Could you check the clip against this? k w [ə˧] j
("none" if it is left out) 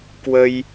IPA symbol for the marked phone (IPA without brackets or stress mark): ə˧